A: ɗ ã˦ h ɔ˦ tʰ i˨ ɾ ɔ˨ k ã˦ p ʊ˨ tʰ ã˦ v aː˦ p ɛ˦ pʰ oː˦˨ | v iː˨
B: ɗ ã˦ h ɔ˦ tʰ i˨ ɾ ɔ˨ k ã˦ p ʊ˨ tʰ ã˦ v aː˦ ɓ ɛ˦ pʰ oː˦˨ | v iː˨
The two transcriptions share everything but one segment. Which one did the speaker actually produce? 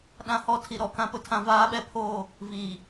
B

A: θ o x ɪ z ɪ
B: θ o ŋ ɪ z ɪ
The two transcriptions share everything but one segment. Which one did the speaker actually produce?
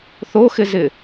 A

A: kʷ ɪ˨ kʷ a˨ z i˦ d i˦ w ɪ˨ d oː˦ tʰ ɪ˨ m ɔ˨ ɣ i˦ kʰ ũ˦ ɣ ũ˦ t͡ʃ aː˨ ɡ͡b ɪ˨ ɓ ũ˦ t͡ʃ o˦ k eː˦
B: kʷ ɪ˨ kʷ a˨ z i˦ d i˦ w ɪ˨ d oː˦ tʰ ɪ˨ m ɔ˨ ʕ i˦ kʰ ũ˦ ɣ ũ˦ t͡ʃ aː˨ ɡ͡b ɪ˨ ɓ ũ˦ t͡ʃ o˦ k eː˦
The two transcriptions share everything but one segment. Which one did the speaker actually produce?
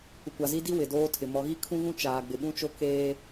A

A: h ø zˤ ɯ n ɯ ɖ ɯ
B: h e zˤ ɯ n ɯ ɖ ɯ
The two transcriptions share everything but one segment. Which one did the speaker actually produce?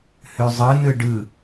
A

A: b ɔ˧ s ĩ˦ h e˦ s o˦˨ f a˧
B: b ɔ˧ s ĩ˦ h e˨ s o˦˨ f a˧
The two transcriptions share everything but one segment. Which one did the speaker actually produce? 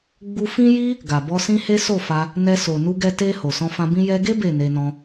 A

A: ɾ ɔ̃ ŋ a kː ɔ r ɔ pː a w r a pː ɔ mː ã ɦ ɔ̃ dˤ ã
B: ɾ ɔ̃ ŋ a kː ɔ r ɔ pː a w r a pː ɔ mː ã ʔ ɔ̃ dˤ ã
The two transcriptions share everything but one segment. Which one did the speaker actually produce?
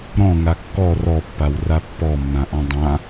B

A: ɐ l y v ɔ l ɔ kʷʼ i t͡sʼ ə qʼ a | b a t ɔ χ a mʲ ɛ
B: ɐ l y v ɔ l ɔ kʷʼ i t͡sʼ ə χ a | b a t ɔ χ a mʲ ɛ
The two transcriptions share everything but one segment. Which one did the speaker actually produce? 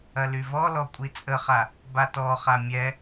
B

